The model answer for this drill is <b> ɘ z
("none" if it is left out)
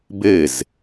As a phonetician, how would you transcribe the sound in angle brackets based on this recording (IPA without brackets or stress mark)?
b